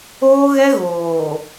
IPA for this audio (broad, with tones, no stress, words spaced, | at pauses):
oː˦ɣɛ˦ ɣoː˨